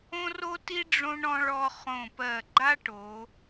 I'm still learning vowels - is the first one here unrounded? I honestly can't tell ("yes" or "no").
no